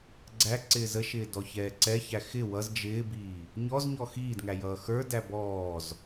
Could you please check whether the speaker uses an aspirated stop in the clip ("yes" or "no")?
no